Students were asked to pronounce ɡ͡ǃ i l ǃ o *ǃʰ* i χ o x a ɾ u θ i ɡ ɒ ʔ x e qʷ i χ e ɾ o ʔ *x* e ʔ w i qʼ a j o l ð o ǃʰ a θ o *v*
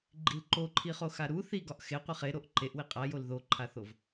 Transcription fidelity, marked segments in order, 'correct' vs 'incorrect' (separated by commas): correct, incorrect, correct